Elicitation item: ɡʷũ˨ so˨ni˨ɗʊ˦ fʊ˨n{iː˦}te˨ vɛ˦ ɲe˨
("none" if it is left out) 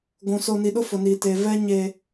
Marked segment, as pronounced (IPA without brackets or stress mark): iː˨